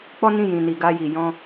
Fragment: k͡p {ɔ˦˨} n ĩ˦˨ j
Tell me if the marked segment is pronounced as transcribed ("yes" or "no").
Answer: no